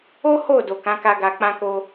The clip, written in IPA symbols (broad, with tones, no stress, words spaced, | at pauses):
o˦ ho˦˨ do˨kã˨˦ka˧ ɡa˨ k͡pã˧ko˧